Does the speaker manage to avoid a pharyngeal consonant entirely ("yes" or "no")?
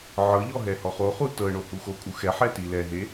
no